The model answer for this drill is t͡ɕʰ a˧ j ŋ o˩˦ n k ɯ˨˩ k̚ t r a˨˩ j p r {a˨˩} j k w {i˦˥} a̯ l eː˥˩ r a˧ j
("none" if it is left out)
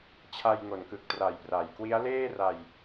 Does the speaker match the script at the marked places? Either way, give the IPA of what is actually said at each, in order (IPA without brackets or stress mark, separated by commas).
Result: a˩˦, i˦˥